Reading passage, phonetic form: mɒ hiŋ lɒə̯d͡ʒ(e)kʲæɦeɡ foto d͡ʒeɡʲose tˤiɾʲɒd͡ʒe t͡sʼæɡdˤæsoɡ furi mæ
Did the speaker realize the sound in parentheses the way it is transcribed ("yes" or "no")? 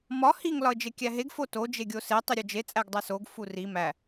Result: yes